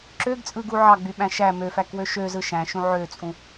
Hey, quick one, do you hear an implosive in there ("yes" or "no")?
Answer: yes